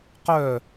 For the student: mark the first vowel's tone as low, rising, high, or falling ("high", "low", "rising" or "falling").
falling